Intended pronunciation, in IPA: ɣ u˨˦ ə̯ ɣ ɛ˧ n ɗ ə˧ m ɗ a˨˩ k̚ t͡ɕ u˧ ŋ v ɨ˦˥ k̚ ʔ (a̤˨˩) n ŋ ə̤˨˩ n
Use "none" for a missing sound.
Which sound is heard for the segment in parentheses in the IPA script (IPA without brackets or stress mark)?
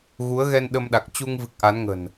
a˨˦